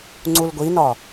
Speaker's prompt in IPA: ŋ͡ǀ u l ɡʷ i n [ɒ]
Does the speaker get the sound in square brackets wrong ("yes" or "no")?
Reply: no